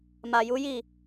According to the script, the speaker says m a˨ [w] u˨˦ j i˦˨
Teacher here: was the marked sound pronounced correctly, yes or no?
no